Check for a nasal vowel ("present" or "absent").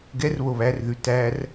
absent